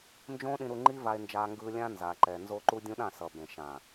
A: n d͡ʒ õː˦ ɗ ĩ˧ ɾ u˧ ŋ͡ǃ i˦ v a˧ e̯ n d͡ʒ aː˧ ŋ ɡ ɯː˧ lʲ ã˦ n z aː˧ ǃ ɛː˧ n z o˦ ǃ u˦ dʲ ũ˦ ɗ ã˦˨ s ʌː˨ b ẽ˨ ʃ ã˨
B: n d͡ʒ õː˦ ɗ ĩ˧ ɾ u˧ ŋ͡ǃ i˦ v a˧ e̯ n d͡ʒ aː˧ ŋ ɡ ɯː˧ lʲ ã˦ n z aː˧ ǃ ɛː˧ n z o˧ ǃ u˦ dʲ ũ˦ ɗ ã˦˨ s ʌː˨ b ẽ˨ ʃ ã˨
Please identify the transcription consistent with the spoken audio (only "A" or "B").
B